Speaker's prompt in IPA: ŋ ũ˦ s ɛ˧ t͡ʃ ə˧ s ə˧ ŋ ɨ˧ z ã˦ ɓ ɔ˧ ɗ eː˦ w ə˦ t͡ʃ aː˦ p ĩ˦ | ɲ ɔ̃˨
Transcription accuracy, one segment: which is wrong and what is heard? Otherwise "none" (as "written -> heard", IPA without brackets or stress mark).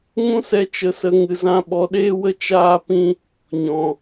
none